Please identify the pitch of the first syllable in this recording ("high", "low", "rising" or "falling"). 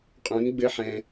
rising